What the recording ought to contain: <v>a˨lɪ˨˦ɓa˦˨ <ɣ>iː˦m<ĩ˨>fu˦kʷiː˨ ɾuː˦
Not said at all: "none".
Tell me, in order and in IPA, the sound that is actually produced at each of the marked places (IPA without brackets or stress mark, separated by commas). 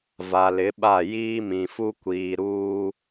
v, j, ĩ˨